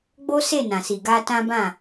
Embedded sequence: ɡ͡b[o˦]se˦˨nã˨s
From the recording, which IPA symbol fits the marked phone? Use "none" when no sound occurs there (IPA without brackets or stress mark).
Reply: o˦